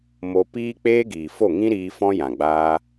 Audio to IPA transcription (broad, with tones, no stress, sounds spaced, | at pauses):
m o˧ p iː˦ k͡p eː˦ ɡ iː˨ f o˦˨ ŋ ĩ˦ ɾ iː˧ f ɔ̃˦ j ã˨ ɡ͡b aː˧